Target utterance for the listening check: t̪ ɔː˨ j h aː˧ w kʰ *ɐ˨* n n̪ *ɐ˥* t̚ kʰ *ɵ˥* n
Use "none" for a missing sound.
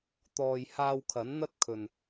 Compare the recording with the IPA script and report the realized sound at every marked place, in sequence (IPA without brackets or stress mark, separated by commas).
ɐ˨˥, ɐ˥, ɵ˨